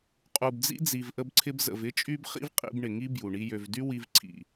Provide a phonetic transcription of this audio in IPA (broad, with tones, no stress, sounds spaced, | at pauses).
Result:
qʼ u˨ b d͡z ḭ˦ d͡z i˨ v ʔ ə˧ b ǀʰ ɪ˧ b z ə̰˨ v ɪ˦ t͡ʃʼ y˦ b χ ḭ˦ v qʼ ḭ˧ b ɳ ɪ˨ ŋ i˦ b j u˨ ɳ i˦ j ø˧ v d y˦ w i˧ v ǀʰ ḭ˨